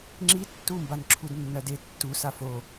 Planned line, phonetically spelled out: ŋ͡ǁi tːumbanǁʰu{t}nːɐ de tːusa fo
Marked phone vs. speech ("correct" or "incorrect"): incorrect